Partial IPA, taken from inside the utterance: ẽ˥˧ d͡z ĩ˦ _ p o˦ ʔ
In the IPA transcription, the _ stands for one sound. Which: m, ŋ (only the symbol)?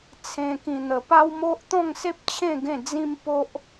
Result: m